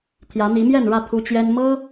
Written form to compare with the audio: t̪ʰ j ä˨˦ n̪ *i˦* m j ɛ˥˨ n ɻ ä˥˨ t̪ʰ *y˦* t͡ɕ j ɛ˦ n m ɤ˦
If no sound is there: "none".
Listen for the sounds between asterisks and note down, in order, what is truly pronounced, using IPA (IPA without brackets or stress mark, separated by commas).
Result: i˨˦, u˦